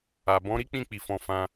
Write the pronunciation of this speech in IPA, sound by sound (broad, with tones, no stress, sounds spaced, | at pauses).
a˨ b ɔ̃˨˦ ɾ i˦ k͡p ĩ˦˨ k͡p i˨ f ɔ̃˨ f ã˧